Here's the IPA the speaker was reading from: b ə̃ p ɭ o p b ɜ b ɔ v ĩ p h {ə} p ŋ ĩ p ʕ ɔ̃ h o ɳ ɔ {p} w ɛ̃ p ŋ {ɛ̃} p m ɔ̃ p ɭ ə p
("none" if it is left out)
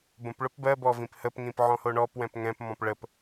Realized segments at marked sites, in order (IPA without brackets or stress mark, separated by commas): ə, p, ɛ̃